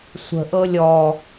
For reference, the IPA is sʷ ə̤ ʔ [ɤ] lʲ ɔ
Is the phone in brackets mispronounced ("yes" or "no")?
no